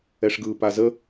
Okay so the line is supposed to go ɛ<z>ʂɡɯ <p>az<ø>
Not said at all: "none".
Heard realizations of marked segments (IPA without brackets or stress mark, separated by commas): none, p, ə